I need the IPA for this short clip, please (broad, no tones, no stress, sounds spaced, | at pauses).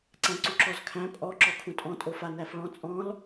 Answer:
ǀ æ̃ ǀ u ǁ ɔ z kʰ æ̃ pʼ ɔ ǁ ɔ kʰ ũ tʼ ɔ̃ tʼ o f a n æ f ɭ ɔ̃ t͡sʼ ɔ̃ l